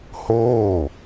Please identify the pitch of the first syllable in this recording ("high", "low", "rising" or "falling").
falling